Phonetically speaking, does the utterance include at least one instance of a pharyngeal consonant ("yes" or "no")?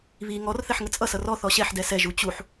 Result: yes